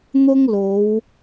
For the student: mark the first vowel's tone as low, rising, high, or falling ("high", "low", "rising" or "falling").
high